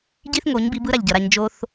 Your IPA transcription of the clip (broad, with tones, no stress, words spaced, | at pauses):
ɟi˦θŋo˨˦ɲbi˨˦b ɯ˦ɾa˨ʎɟʌ˨ɾa˧ɲ d͡ʒo˧θ